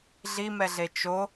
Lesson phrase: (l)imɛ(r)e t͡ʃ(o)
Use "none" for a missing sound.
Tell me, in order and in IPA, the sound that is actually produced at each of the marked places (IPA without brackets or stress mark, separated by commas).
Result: ɮ, ɮ, o